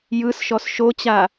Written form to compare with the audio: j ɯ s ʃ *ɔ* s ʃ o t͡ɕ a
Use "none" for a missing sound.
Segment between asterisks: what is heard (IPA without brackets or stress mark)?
ɔ